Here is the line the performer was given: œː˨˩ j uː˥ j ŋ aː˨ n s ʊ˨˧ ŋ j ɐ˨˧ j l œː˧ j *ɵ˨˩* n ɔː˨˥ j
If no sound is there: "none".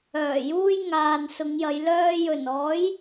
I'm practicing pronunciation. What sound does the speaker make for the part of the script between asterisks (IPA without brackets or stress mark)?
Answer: ɵ˨˩